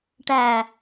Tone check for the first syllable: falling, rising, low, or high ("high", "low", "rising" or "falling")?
low